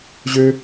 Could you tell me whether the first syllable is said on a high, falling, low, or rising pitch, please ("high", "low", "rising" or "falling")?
low